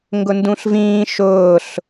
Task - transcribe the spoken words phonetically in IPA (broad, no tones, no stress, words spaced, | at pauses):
ŋɡʊndũɬvĩː ʃʊːɬ